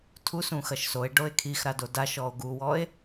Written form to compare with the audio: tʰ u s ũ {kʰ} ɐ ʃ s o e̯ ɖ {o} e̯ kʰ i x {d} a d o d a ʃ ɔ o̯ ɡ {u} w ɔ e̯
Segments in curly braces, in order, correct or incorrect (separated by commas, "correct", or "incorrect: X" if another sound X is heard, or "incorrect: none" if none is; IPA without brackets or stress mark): incorrect: x, correct, incorrect: ɾ, correct